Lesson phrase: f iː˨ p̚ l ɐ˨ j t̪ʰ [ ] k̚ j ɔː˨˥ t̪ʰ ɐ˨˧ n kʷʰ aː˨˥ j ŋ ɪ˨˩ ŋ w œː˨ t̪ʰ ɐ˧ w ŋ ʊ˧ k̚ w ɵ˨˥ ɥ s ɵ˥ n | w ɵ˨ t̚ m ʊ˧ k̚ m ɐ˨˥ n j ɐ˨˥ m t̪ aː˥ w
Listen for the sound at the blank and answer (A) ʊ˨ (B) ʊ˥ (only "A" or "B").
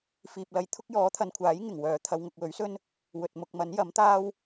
B